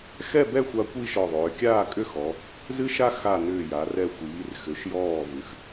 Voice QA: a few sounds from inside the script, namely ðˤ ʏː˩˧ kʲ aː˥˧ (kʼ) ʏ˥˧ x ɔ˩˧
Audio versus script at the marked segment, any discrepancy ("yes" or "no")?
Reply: no